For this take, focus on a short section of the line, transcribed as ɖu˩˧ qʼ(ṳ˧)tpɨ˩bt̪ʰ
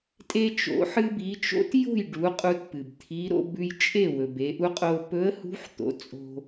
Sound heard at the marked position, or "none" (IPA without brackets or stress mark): u˧